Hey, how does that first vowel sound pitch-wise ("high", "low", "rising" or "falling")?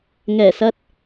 low